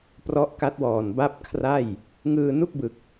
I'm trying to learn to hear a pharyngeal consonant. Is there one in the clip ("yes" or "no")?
no